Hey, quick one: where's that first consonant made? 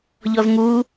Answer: palate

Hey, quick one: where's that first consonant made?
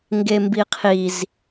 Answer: velum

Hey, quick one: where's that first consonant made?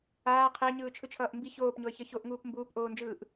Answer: uvula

